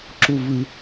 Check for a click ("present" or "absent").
present